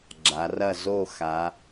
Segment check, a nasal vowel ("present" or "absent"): absent